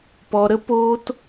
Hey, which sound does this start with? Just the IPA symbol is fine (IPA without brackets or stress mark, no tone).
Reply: p